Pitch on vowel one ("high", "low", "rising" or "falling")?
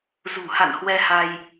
low